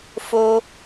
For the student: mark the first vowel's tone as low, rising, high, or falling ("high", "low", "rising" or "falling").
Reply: high